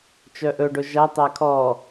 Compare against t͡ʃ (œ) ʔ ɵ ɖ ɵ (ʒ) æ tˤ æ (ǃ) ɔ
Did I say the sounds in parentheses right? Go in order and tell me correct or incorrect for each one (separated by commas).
correct, correct, incorrect